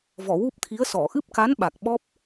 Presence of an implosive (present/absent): present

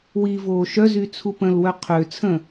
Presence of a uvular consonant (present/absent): present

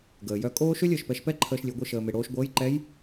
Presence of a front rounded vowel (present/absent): present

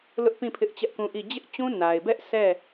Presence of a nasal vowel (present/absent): present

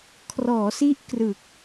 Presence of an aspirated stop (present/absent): present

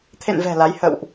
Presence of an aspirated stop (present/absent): present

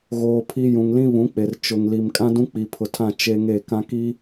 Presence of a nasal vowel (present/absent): present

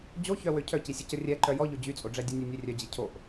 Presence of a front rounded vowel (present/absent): present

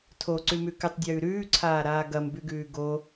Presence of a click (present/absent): present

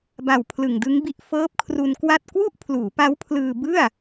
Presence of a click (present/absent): absent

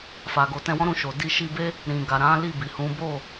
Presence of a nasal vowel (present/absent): present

